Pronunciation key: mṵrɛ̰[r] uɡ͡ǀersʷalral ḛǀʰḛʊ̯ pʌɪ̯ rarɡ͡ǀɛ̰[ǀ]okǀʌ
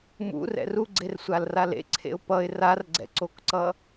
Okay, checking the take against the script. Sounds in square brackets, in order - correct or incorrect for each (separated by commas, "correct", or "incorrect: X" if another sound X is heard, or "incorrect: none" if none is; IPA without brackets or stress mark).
correct, correct